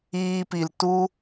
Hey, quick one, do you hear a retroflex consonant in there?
no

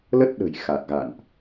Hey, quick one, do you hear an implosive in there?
yes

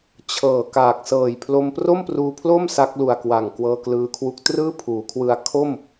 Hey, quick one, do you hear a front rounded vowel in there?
no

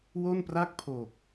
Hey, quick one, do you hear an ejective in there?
no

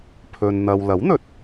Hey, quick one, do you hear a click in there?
no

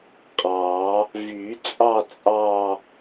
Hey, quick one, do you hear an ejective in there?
yes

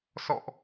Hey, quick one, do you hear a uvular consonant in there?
no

